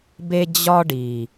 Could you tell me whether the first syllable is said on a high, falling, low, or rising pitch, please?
high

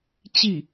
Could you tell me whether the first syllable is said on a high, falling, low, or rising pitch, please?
falling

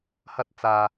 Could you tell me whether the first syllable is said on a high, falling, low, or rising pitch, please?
high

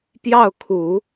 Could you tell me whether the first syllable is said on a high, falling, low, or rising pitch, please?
falling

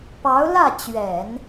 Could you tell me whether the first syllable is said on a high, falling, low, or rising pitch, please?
rising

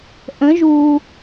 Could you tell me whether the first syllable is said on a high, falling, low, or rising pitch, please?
rising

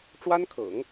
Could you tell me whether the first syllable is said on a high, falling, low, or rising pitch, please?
high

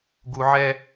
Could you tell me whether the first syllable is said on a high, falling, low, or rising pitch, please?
low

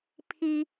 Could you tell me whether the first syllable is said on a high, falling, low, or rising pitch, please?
high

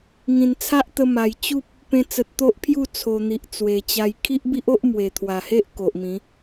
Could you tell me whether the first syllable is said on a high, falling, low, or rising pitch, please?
low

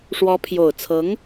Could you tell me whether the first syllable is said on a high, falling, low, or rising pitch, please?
rising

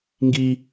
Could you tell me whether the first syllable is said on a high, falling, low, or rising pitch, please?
high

